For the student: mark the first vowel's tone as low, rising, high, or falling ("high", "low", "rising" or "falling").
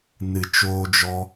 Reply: low